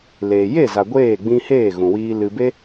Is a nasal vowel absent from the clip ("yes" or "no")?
no